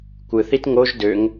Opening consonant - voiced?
no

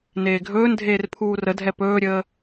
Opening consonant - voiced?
yes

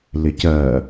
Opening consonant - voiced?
yes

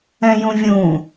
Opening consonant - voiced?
yes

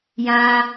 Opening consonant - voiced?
yes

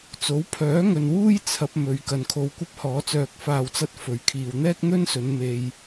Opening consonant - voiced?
no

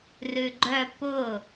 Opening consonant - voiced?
yes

